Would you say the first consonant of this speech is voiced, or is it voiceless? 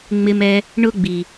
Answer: voiced